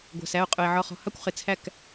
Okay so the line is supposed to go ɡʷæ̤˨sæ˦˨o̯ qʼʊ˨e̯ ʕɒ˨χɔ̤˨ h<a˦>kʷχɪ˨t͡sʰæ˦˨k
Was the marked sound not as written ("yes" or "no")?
yes